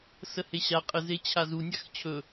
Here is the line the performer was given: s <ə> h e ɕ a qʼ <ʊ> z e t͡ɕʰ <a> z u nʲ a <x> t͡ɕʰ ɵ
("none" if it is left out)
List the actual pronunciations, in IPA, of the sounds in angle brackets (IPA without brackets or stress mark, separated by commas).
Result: ə, ə, a, x